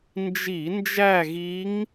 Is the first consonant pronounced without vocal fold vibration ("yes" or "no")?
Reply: no